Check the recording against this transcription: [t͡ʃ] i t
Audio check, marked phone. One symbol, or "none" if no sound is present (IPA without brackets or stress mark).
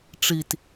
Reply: ʈ͡ʂ